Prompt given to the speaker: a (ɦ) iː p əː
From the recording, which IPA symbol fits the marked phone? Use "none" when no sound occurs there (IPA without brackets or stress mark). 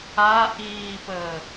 ʔ